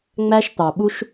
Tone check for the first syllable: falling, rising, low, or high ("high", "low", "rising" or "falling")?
high